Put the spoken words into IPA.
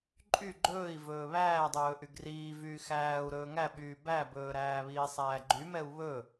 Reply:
ǃʼ y ɡ͡ǃ ɵː i̯ v ɵː β æː dˤ ɵː ʔ y ɡ r iː v yː x æː u̯ ɾ ɵː ŋ æ ɓ yː b æ b ɵː ɾ æː β iː sˤ æː ɡ͡ǃ y m ɛ u̯ β ɵ

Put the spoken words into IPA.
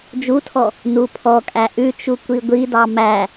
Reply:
d͡ʒ u tʰ ɔ | n u pʰ ɔ kʼ æ ʔ ʉ t͡ʃ u kʷ i ɡʷ i d ɑ m æ

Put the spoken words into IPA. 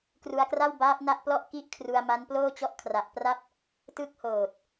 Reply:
k r u˧ a̯ k r a˥˩ w b aː˦˥ p̚ n a˥˩ ʔ p l ɔ˥˩ ʔ k i˥˩ ʔ kʰ r u˧ a̯ m a˦˥ n p l oː˥˩ t͡ɕ ɔ˦˥ ʔ kʰ r a˨˩ ʔ p r a˥˩ p̚ | t ɯ˦˥ k̚ h oː˨˩ t̚

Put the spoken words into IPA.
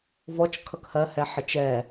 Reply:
v ɔ t͡ʃ kʰ ʌ k h ɜ h ɛ ħ ə t͡ʃ ɛ

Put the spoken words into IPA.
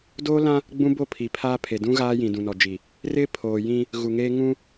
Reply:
d oː˦ l ã˦ | ɡ͡b ũ˦ b o˦˨ pʰ i˨ pʰ aː˦ pʰ e˨ d ũ˦ ɣ aː˦ j ĩ˨ d ũ˨ n ɔ˨ d͡ʒ i˨ | r ɪ˦ pʰ oː˨ j ĩ˦ | ɣ u˨ ŋ eː˦ ŋ ũ˦

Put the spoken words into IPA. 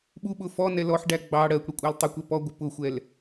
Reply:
ɓ u ɓ ʊ f ɔ n ɛ l ɔ ħ ɖ æ ɡ͡b ɑ ɽ ɜ kʷ ɽ ɪ kʷʼ æ l tˤ ɪ kʷ ɛ p ɔ ɡʷ ɪ p ʊ xʷ ɛ l

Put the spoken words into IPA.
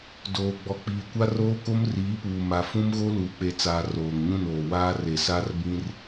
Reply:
d oː˨ ɡ͡b ɔ˨ k͡p iː˨ kʷ a˦ r oː˦ k o˦ m r iː˨˦ p uː˨ m a˨ f ũ˦ m ɣ o˦ l uː˨ k͡p e˨ t͡s aː˨ r oː˨ ŋ ɲ ũ˦˨ n oː˨ w aː˦ r e˨ s a˦ r b ĩ˦ r

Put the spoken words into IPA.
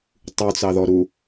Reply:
tˤ u t͡s ɑ ð ɔ ɾ u

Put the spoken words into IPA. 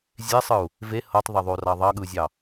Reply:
zʲ e sˤ ɯ u̯ | v e h ɤ tˤ ðˤ ə ðˤ o r ɑ ðˤ ɑ ɠ ɯ zʲ ɑ

